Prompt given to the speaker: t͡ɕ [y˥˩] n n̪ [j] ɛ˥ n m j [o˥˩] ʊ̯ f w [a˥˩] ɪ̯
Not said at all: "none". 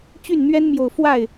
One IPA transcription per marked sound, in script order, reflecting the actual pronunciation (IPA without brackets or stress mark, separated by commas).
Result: y˥˩, ɥ, o˨˩, a˥˩